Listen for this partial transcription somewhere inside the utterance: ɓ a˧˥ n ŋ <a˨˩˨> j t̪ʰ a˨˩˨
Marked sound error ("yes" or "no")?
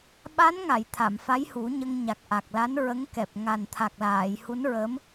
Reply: no